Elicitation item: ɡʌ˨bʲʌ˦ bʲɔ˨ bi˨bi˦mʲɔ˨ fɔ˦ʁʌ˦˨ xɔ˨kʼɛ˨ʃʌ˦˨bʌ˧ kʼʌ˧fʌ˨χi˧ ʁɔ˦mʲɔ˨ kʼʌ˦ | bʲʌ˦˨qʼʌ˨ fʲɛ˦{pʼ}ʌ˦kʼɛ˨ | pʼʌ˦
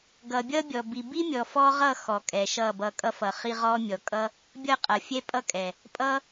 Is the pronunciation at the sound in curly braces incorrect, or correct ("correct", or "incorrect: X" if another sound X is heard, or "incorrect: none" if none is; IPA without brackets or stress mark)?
correct